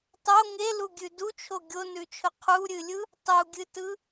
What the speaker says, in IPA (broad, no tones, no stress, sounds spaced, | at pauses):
tˤ o ŋ e l u ɡʲ ʉ d u t͡ʃʰ o ɡʲ o n ʉ t͡ʃʰ ʊ qʰ u ɾʲ ɨ lʲ ɯ | tˤ u ɡʲ ɨ t ɯ